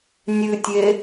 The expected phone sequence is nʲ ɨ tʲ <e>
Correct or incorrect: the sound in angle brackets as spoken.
correct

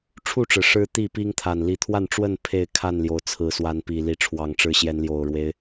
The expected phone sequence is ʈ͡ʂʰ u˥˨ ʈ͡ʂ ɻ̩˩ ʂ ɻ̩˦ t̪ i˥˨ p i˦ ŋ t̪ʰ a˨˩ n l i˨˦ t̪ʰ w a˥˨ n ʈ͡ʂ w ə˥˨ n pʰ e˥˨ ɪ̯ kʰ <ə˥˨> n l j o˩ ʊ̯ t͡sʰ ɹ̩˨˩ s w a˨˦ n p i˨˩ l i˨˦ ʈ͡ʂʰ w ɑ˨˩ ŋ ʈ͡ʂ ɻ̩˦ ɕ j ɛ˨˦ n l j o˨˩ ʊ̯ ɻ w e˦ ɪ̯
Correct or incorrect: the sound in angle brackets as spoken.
incorrect: a˥˨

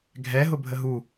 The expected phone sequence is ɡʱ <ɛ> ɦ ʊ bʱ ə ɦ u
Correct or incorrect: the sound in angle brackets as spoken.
correct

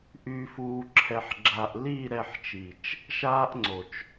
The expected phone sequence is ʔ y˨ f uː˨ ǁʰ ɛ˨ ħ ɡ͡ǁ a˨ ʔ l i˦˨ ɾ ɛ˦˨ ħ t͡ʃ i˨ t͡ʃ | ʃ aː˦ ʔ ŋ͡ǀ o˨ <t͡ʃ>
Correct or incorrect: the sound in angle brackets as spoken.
correct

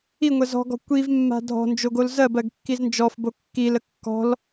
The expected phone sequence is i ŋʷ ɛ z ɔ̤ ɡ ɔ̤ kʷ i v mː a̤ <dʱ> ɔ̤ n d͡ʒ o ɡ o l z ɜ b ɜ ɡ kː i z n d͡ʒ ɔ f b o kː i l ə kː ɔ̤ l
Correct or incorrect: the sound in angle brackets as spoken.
correct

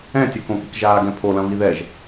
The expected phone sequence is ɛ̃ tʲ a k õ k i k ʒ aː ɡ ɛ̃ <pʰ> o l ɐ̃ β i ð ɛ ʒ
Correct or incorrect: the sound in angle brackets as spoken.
correct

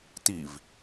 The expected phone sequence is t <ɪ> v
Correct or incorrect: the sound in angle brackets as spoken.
incorrect: i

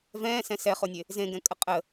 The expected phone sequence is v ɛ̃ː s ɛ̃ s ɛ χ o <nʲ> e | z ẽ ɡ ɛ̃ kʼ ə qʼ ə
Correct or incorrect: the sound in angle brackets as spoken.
correct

